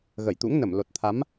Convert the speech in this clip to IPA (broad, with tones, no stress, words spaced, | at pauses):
ɣə˧˩jt̪ṵ˧˥ŋnə˧˩m lo˨˩t̚t̪ʰa˨˦m